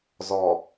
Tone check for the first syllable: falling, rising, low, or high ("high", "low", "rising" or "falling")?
low